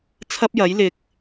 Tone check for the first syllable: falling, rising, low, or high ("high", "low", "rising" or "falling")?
high